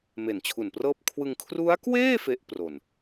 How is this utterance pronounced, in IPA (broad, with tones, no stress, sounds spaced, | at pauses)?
m e˨˩ n t͡ɕʰ u˨˩ n p r ɤː˥˩ p̚ kʰ w ɯ˧ ŋ kʰ r u˦˥ a̯ k w eː˥˩ f e˦˥ ʔ p r o˨˩ n